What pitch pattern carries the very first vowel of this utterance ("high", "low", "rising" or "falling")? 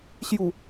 low